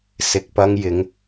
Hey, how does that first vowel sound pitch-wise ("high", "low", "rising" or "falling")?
low